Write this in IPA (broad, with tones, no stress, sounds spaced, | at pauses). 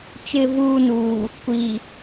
t͡ʃ ɪ˨ v uː˨ n uː˨ | kʷ i˨